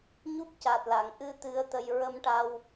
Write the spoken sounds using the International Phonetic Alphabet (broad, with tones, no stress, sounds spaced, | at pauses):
ɲ u˦˥ p̚ c a˨˩ t̚ l a˨˩˨ ŋ ʔ ɨ˧ t̪ ɨ˧˥ ə̯ t̪ ə˧ j ɹ ə˧ m ʈ a˧ w